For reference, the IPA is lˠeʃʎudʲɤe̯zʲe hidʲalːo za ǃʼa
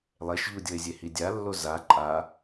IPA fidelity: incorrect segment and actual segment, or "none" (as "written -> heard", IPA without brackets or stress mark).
none